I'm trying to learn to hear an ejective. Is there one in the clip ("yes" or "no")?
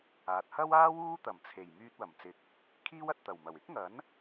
no